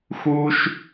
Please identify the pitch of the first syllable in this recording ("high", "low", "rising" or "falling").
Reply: high